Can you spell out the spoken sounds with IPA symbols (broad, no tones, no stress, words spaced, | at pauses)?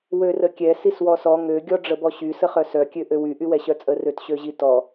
wørəkʲɛ siswɔsɔ ŋø ɡʲɔɖ͡ʐəbɔɕy səχœsœkʲø ʔøwy ʔywɛɕœt͡sʼə røtɕøʑitɔ